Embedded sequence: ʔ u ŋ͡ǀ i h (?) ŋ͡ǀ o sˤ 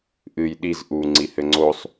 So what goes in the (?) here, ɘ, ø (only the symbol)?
ɘ